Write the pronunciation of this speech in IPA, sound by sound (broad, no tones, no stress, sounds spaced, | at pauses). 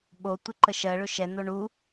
ɓ o tʷ ɪ ǃ ə ʃ ɜ ɭ ɵ ʃ ɛ n̪ o ɳ u